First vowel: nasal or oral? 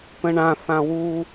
nasal